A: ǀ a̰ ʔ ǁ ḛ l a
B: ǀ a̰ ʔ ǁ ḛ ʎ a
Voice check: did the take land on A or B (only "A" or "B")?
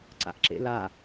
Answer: A